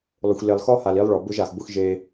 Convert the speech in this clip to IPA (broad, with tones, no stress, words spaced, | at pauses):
lˠʊ˨xʷle˨lˠ xɔ˦ha˨li˨˦lˠɭɔ˨ bʊ˦ʒa˨x bʊ˦xʒe˦